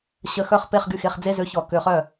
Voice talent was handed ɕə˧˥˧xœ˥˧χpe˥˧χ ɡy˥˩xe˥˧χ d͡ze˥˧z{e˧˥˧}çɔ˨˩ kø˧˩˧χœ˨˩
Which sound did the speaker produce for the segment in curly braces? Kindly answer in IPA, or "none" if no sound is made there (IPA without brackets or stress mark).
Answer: ø˧˥˧